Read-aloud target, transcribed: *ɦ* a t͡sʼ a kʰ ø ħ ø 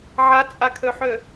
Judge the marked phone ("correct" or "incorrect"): incorrect